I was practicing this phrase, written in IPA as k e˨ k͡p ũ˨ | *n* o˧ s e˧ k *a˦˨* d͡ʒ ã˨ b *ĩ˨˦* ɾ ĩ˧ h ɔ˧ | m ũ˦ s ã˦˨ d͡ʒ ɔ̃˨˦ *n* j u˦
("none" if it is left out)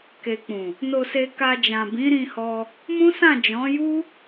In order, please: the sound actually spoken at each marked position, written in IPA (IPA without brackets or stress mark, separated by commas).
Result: n, a˧, ĩ˨˦, none